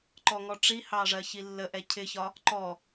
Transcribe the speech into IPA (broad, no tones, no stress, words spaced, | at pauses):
ǃɔŋɔʈ͡ʂihɑ ʐɜçilːəʔɛ cʰɪçɒ | ǃɔ